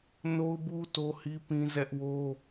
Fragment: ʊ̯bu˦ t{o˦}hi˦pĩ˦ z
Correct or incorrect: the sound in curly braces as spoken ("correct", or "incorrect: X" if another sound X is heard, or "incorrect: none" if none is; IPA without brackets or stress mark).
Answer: correct